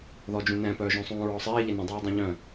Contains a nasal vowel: yes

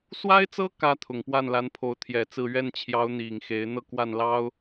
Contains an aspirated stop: yes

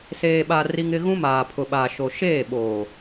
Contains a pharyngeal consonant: no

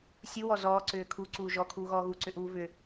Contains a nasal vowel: no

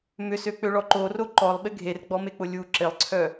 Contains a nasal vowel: no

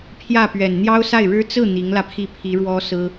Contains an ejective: no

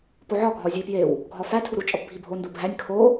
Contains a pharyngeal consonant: yes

